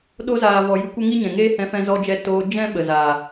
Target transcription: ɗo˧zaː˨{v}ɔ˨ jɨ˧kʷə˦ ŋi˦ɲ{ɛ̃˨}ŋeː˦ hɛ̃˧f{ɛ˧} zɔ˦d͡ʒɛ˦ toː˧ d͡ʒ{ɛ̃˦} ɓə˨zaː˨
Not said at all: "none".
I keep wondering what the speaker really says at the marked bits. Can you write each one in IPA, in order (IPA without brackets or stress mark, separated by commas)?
v, ɛ̃˨, ɛ̃˧, ɛ̃˦